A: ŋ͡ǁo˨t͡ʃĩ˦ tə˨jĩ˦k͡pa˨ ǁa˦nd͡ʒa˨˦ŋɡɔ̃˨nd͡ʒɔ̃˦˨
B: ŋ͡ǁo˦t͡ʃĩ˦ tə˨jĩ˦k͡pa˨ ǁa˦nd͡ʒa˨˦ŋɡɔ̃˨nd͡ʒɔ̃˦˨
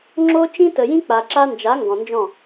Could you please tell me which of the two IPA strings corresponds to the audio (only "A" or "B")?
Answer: B